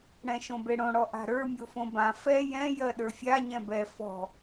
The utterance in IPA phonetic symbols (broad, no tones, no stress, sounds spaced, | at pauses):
ɽ ɛ̃ ʃ õ b e ɽ õ ɽ ɔ ʔ a̤ ɾ ə˞ mʲ o f õ b ã f ɛ j ɛ̃ j ɜ ɗ ə˞ fʲ a ɲ ɛ̃ b ɛ f ɔ̤